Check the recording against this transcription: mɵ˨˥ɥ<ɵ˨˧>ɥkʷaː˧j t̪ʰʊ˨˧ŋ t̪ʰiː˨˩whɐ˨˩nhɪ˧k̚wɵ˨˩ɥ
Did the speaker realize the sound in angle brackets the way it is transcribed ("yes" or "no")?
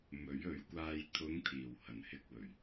yes